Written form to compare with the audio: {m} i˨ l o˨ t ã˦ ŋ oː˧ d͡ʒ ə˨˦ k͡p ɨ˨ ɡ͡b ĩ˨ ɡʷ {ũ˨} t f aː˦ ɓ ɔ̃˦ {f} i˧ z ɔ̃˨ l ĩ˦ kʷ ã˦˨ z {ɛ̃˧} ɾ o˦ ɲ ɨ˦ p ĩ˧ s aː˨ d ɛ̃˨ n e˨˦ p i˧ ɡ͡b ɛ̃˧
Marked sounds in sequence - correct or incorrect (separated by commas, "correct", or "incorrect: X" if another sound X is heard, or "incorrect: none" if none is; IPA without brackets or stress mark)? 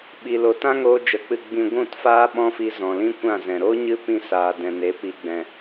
incorrect: ɓ, incorrect: ũ˦˨, correct, incorrect: ɛ̃˨